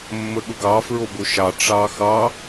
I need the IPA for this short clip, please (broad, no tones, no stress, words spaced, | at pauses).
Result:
mːəɠʊɡɑ fɹoboʃɑ ʈ͡ʂɑxɑ